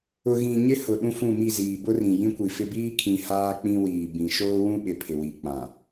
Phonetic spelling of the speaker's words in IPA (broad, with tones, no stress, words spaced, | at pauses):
ʊ˨ ɣĩ˨ɲɪ˦hʊ˨ ɗũ˦fũ˦˨mi˦˨ ziː˨bʊ˦rĩ˨ jĩ˦kʷi˨fɪ˦ biː˦kʰĩ˨ haː˦k͡pĩ˦wiː˨ bĩ˨ ʃoː˦wũ˦ɓɪ˨ pʰɪ˨wi˨k͡pã˨